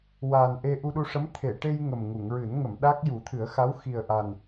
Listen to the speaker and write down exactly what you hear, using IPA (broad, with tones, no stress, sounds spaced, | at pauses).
w aː˨˩ n ʔ e˧ ʔ u˧ ɗ u˧ ʂ ə˧˥ m t̪ʰ e˨˩˨ ʈ e˧ j ŋ ə˨˩ m ŋ u˨˩˨ ŋ ɹ ɨ˨˩˦ n ŋ ə˨˩˨ m ɗ a˦˥ k̚ j u˨˩˦ t̪ʰ ɨ˨˩˦ ə̯ x a˧˥ w x i˨˩ ə̯ ʔ a˨˩ n